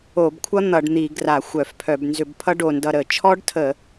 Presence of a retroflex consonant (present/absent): present